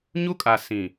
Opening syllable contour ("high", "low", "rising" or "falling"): high